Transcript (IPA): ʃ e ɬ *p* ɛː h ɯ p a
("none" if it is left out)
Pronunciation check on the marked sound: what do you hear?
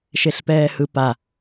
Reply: p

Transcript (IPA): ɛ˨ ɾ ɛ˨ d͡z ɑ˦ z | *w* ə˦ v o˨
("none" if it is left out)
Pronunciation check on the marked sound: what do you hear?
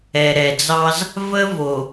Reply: v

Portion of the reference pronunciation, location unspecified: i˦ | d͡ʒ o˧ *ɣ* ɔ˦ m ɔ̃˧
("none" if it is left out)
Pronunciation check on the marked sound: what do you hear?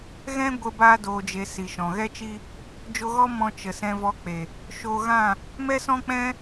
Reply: ɣ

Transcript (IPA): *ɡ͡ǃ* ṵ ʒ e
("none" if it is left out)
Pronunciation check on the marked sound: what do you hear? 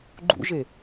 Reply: ɡ͡ǃ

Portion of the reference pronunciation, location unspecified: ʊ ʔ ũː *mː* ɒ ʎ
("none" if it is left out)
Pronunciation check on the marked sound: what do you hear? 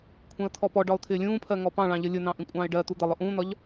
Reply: n̪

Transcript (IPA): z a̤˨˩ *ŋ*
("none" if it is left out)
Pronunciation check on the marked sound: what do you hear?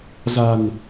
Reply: n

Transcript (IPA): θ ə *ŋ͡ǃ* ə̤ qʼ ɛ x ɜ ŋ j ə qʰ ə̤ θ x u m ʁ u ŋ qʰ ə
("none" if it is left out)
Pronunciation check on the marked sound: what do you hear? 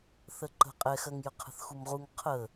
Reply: ǃ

